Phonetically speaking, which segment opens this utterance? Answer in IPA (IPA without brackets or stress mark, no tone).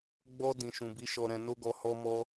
ɡ͡b